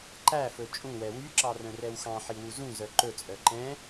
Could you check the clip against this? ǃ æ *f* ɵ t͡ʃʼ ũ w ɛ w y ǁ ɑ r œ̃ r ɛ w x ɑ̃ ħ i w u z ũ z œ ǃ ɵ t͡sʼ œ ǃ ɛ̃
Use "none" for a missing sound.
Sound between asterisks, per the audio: f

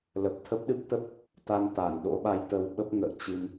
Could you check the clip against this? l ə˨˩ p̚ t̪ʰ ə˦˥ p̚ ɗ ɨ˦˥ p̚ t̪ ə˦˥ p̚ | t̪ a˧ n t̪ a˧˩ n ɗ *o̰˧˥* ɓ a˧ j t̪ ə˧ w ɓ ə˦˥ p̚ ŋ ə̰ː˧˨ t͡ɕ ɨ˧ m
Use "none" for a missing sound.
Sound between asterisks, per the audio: o̰˧˥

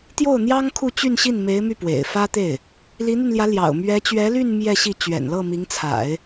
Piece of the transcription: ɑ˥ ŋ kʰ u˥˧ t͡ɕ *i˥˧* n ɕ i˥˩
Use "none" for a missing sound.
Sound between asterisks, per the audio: y˥˧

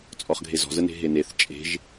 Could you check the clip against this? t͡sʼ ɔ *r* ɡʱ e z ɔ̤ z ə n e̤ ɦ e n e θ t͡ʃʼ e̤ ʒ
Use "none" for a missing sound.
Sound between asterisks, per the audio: χ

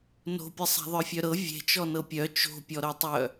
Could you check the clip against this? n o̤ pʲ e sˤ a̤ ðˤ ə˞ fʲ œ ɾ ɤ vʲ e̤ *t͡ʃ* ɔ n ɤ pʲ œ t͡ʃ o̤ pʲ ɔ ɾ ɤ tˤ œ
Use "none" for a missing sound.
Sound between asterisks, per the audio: t͡ʃ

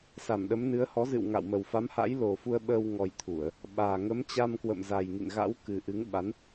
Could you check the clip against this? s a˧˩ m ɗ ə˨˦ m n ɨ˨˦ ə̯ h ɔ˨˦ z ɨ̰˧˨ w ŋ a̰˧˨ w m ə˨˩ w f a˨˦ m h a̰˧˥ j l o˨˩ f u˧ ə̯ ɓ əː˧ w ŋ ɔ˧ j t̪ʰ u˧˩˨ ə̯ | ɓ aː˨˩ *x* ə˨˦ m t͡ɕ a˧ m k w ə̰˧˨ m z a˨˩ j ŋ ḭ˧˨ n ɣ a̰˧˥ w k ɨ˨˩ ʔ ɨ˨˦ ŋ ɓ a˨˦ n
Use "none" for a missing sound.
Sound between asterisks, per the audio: ŋ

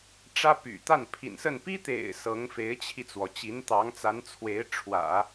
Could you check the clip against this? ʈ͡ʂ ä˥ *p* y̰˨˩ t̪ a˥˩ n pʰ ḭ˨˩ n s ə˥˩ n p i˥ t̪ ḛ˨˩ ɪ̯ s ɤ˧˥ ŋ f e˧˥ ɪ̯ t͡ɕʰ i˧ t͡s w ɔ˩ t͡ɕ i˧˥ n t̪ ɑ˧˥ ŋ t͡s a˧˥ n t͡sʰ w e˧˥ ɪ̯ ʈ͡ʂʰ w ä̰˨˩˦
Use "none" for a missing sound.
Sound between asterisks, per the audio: p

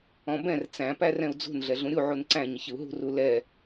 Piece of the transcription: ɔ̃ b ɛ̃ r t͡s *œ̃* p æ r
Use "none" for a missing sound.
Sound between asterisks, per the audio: æ̃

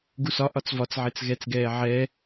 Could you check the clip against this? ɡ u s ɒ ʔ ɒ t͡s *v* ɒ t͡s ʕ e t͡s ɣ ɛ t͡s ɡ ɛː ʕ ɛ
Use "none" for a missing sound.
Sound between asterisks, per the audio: v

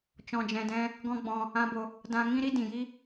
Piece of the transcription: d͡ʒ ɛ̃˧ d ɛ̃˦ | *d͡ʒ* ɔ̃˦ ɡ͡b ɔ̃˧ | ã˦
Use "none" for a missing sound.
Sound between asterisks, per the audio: ɡ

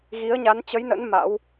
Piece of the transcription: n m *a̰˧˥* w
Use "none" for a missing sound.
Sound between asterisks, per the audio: a̰˧˥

